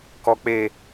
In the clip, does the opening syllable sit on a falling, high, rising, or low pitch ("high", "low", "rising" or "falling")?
low